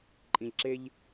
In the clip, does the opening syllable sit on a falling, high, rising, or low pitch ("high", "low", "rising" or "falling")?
low